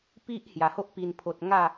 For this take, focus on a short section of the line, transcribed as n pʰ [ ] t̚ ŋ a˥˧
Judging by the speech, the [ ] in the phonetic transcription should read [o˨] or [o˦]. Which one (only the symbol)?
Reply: o˨